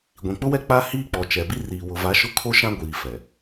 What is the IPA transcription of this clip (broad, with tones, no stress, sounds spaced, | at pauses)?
ɡʷ ĩ˨ k͡p ʊ˦ w ɛ˦ k͡p a˦ h iː˦ k͡p ɔ˨ t͡ʃ ɛ˨ b i˦ r iː˨ w ʊ˨ v a˨˦ ʃ ʊ˦ kʰ o˦ ʃ ã˦ ɡʷ iː˨ f ɛ˨